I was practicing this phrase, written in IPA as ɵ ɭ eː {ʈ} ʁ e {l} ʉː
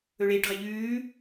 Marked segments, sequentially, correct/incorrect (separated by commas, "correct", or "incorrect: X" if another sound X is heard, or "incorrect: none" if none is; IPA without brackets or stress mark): correct, incorrect: ʎ